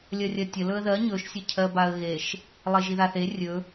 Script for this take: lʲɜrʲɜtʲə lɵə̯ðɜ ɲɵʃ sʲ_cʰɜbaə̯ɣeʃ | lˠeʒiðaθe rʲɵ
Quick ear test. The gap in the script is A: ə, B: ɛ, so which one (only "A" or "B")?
A